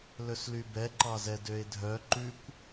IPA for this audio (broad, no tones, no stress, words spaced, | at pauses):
lɵslybɛ ǃɑzɛdøɪ̯dʱœ ǃʉkʷ